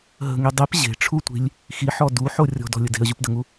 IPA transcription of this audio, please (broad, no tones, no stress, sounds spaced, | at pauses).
ɦ ə̤ ŋ i dˤ i p ʑ e̤ ʈ͡ʂʰ u tʷ i̤ lʲ | x i ħ ɔ d u ħ o rʲ ɔ̤ d ɔ̤ lʲ ə d e̤ ə̯ ʑ u p d ə ŋ u